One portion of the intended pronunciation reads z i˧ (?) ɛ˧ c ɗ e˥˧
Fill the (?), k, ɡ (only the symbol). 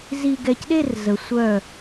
ɡ